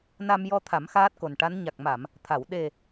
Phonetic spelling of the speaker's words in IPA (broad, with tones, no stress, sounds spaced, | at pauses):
n a˧ m j ɔ˧ t̪ʰ a˨˩˦ m x aː˦˥ t̚ k o˨˩ n ʈ a˧˥ n ɲ a˨˩ k̚ m a˨˩˨ m | t̪ʰ a˨˩˨ w ɗ e˨˩